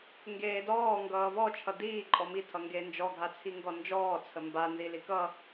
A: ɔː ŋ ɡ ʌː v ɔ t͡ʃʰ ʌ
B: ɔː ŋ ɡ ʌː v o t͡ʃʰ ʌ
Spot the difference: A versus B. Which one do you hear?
A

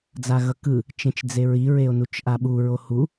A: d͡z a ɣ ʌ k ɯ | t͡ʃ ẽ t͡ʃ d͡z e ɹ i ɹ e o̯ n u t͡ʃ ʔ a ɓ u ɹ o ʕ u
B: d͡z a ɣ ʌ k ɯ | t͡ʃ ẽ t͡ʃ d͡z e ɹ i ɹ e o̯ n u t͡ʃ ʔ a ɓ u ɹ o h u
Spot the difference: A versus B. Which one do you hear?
B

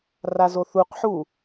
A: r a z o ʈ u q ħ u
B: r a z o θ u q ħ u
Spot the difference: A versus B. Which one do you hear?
B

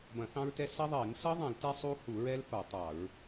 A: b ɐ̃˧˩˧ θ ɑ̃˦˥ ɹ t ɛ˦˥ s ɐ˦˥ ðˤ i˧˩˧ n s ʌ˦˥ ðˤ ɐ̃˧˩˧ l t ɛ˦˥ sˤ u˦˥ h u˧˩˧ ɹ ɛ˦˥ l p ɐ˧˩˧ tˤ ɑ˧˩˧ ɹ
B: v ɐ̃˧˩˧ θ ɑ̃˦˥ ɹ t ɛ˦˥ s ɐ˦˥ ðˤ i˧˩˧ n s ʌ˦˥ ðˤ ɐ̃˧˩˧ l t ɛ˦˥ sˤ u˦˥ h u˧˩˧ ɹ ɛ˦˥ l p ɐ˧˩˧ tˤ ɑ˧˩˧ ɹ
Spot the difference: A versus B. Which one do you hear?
A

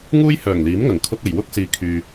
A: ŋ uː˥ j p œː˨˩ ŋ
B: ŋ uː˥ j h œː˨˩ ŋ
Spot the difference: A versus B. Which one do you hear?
B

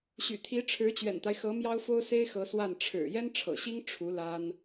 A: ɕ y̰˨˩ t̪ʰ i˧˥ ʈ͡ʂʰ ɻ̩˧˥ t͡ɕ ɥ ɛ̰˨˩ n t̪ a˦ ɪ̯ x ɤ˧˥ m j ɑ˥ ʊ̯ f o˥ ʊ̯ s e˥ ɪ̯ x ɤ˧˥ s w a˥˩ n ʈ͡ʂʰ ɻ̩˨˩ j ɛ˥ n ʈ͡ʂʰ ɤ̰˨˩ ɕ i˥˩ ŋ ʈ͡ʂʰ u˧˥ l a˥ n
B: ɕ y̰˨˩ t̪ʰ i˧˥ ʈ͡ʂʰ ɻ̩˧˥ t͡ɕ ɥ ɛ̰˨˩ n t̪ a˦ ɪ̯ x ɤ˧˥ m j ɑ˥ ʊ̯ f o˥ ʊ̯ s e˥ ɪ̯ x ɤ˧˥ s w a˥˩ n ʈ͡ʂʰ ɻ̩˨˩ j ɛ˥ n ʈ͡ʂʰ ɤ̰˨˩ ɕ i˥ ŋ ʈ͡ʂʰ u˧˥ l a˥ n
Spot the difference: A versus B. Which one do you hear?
B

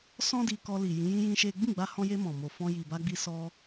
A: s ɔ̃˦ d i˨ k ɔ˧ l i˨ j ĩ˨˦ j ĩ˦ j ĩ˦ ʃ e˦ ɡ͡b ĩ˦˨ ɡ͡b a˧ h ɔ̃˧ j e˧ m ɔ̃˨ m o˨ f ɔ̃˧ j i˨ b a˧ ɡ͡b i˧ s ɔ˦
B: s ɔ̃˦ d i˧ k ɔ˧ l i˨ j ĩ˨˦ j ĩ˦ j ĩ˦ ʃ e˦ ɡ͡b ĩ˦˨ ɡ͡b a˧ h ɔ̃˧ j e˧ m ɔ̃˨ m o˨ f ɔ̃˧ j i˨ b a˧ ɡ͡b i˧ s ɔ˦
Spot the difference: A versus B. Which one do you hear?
B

